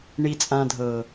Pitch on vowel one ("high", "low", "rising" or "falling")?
low